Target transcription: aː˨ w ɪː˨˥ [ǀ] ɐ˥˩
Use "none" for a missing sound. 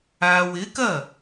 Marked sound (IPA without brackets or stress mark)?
k